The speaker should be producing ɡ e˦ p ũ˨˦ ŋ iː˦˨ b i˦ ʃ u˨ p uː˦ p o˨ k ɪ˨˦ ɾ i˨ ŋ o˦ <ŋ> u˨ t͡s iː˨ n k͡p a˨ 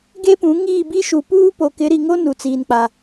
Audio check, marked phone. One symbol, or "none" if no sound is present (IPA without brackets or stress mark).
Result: n